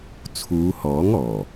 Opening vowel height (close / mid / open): close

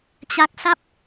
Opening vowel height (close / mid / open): open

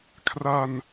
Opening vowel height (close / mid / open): open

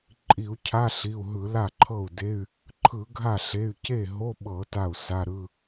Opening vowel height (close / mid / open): close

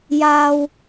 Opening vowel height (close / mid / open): open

